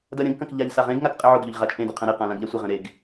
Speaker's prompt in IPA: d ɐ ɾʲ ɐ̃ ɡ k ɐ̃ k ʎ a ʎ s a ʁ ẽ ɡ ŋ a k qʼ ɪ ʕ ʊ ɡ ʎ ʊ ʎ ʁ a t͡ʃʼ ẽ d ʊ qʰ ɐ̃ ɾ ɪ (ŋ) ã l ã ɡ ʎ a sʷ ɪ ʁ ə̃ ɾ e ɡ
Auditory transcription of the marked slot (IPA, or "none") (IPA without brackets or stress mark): q